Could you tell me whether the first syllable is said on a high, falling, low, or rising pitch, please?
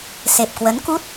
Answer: low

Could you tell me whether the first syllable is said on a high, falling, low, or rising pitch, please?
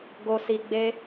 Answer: low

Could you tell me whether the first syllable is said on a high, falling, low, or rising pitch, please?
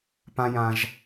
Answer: high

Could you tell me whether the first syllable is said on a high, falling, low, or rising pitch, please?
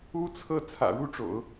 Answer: high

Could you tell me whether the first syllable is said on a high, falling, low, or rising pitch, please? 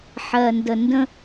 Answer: low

